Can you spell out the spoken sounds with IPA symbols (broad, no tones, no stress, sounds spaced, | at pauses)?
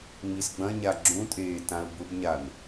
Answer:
ŋ͡m i s ɡ͡b ɐ̃ ɲ a ɡ͡ǁ ũ tʼ eː t ã ə̯ b ʊ b ɲ a n